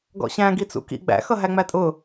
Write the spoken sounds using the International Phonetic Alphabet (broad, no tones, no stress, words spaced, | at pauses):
ɡɔ̰ɕæ̃ ɡit͡sṵkḭ ɡ͡bæ̰ xʌɦæŋ͡mætʼʊ